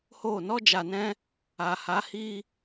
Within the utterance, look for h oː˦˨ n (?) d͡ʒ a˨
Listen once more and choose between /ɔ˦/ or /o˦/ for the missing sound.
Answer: ɔ˦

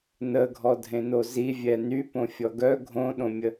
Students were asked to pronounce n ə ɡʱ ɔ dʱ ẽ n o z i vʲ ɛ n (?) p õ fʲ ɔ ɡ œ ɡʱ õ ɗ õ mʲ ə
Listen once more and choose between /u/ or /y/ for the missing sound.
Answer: y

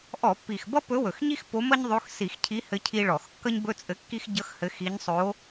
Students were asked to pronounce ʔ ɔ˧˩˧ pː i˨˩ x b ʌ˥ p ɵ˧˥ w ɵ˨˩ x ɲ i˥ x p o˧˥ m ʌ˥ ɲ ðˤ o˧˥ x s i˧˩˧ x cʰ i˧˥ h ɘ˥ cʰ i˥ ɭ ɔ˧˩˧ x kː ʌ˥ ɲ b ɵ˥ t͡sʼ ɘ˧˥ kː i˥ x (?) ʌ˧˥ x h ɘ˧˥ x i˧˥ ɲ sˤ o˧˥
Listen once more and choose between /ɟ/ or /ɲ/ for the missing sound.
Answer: ɟ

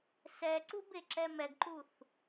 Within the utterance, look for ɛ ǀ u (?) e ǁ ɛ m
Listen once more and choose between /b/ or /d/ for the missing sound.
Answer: b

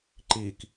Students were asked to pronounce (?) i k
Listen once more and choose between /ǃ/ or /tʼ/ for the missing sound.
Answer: ǃ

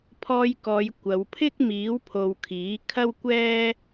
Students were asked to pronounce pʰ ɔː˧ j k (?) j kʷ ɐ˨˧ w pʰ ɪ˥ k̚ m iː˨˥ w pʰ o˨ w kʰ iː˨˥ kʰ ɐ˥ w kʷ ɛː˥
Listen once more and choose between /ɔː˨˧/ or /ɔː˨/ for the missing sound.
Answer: ɔː˨˧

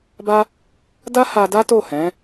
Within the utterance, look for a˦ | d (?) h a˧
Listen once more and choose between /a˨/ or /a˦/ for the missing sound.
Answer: a˦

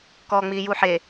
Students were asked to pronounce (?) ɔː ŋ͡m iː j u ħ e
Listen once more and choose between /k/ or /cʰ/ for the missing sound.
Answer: k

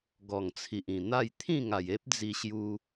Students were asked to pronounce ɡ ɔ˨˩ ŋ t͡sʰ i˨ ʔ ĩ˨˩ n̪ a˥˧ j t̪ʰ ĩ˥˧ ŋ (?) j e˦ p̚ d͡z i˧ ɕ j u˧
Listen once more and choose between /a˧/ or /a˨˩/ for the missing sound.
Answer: a˨˩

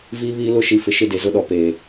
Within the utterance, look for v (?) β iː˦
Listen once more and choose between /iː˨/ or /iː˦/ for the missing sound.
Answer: iː˦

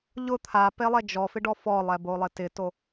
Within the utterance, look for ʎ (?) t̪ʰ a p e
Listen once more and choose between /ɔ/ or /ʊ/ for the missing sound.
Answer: ʊ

